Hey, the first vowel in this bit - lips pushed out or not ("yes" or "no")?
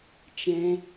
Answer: no